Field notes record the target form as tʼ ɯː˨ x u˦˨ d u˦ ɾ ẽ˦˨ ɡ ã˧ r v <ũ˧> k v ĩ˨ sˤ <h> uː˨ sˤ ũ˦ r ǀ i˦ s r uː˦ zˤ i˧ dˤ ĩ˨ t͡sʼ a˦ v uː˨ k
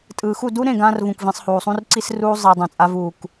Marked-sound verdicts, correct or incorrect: incorrect: ũ˨, correct

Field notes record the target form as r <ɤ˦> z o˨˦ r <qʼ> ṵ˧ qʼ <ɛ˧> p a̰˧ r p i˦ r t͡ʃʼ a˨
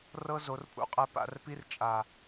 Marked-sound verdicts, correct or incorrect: correct, incorrect: pʼ, correct

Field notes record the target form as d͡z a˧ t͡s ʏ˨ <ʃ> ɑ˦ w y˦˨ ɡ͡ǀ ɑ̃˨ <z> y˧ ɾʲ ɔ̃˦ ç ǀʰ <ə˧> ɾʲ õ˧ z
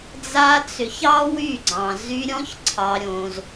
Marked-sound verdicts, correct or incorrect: incorrect: ç, correct, incorrect: ɑ˧

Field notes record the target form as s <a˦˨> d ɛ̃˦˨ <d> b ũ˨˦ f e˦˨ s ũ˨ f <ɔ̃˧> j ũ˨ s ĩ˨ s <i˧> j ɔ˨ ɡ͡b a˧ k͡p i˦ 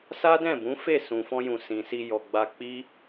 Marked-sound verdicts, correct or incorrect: incorrect: a˦, incorrect: none, correct, correct

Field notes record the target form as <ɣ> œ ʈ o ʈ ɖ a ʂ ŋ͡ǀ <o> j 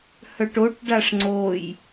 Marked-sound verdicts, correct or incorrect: incorrect: h, correct

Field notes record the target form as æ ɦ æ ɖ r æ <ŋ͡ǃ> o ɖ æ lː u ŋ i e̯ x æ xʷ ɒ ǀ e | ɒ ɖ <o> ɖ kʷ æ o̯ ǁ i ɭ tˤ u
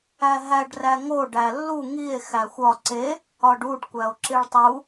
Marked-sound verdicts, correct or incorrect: incorrect: ŋ, incorrect: u

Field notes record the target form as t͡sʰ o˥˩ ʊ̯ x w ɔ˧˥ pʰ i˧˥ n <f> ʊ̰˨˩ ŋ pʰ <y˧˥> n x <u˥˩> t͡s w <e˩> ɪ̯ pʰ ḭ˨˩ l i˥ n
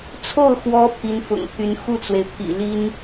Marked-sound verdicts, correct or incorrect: correct, correct, correct, correct

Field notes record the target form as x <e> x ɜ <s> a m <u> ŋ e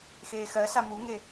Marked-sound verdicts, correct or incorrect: incorrect: eː, correct, correct

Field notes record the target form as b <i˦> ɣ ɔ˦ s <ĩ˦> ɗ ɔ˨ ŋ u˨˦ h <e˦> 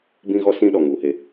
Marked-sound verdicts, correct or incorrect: incorrect: ĩ˦, correct, correct

